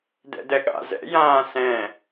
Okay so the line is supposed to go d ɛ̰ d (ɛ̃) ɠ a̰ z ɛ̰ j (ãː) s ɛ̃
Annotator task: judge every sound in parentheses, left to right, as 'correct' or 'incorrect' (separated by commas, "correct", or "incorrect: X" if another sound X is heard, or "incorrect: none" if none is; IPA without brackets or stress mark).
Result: incorrect: ɛ, correct